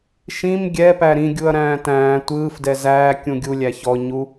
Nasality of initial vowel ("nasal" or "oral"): nasal